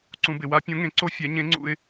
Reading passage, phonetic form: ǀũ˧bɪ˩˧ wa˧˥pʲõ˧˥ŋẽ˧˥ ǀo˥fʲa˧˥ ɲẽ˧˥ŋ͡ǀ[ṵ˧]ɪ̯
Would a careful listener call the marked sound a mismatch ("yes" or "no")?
no